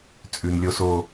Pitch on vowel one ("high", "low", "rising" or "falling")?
low